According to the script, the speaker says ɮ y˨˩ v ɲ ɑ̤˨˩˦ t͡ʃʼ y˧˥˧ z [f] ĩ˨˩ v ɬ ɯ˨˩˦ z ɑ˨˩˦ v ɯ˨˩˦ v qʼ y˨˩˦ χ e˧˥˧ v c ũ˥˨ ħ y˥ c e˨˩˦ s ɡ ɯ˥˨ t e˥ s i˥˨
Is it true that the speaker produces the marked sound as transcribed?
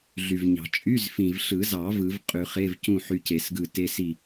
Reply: yes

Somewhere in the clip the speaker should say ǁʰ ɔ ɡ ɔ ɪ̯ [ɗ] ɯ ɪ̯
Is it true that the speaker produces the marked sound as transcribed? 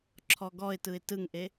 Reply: no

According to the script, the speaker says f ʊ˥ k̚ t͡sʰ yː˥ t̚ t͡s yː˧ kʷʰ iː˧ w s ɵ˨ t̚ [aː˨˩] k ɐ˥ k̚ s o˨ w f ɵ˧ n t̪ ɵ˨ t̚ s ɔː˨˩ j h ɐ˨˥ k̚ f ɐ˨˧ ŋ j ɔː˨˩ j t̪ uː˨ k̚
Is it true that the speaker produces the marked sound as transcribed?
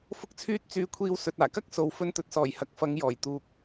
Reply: yes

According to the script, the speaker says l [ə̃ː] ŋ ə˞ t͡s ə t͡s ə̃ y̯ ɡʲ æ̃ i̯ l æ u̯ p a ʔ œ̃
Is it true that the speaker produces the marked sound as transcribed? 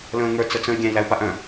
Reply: yes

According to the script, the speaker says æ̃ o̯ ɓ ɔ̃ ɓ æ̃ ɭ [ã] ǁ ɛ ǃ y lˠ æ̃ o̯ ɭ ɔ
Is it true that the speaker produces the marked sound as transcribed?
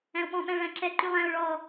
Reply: no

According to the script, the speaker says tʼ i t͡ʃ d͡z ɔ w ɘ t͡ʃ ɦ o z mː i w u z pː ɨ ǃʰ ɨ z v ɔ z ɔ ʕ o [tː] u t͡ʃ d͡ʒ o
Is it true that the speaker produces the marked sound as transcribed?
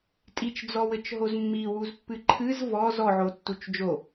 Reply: yes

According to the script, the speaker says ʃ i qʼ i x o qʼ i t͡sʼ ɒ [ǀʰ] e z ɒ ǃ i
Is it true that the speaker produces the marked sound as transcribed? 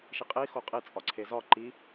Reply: yes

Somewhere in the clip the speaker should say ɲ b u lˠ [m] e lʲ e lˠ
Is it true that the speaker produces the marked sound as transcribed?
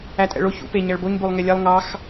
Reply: no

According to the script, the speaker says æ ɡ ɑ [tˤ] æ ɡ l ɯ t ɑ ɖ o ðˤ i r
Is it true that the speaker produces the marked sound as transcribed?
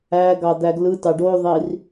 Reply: no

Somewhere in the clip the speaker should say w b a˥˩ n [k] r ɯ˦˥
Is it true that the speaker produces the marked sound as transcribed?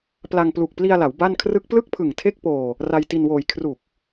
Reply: no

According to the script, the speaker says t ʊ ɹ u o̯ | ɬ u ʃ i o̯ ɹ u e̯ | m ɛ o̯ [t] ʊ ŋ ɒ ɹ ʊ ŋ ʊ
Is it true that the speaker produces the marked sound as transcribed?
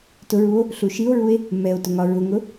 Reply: yes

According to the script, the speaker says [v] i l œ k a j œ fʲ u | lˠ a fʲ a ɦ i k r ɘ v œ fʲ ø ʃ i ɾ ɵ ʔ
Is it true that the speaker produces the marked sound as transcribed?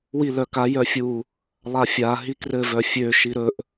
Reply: no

